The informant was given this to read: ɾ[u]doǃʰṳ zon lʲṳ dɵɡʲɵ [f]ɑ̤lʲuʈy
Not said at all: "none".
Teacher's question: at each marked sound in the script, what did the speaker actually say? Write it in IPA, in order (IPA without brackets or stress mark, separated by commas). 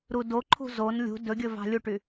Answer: u, v